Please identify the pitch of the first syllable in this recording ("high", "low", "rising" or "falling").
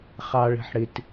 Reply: low